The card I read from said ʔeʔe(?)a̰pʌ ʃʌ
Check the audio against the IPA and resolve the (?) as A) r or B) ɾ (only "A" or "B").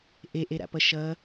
B